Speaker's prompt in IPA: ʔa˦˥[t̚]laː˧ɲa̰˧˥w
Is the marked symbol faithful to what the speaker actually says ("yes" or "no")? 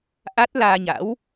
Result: yes